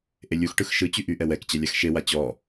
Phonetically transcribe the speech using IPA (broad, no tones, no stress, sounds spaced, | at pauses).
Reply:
ʔ e lʲ u x ʈ ɯ x ʃ ɯ t͡ɕ y ʔ y ʔ ɛ w ɛ k t͡ɕ ɛ lʲ a x ʃ e w a t͡ɕ ɔ